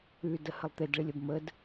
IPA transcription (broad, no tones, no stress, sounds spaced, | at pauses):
ʉ d ə h ə lˠ t̪ e d ɭ i lʲ ə b m ə d